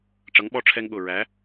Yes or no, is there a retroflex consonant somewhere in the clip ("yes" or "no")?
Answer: yes